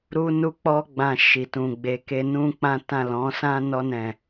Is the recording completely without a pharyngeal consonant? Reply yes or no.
yes